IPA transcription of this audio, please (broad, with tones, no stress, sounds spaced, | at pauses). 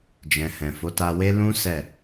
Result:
d͡ʒ ɛ̃˨ h ɛ̃˨ f o˨˦ t a˧ w e˦ l ũ˦ s ɛ˦˨